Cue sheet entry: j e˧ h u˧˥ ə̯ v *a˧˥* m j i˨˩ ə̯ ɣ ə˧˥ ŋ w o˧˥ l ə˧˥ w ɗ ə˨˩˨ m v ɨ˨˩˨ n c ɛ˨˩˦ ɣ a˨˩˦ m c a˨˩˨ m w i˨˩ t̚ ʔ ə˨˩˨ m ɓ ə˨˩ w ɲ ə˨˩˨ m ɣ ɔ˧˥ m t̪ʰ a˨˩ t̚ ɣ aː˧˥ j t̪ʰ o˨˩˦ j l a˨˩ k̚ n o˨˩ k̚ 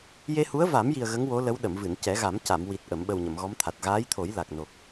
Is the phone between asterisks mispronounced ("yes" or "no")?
yes